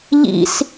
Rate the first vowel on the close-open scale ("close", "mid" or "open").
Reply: close